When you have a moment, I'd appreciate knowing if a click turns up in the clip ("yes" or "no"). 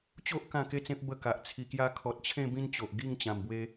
no